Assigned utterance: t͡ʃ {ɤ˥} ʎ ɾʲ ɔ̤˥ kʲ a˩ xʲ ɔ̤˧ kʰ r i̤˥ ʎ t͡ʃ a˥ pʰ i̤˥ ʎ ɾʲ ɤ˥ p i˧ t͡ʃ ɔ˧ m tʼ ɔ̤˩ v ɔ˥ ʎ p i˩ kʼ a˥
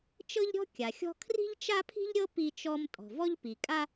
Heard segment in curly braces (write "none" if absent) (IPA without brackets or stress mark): ɤ˥